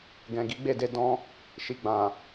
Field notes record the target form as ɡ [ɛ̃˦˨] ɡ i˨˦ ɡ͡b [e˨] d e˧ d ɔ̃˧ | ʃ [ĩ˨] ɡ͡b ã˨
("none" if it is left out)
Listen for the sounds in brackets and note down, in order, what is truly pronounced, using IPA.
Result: ɛ̃˨, e˦˨, i˨

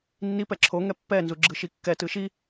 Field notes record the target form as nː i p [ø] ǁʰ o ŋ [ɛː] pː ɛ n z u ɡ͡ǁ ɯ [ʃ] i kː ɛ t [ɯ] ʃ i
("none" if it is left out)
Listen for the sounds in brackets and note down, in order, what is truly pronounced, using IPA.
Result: ɛ, ɛ, ʃ, ɯ

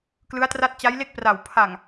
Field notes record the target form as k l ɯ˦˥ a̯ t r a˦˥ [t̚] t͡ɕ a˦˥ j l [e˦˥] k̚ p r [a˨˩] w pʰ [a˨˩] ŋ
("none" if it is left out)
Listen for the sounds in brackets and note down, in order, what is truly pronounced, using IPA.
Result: t̚, e˥˩, a˨˩, a˨˩

